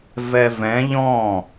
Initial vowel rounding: unrounded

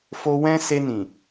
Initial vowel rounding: rounded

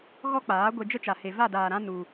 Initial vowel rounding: rounded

